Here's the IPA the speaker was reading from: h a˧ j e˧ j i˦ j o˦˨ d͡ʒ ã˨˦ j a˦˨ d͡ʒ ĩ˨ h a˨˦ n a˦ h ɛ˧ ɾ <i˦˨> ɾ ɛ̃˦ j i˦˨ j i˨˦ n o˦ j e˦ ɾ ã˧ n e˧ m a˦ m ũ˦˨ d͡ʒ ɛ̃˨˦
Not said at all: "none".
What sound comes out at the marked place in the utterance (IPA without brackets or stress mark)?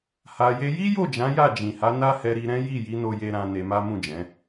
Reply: i˧